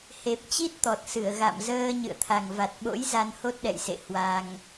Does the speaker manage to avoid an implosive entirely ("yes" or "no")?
no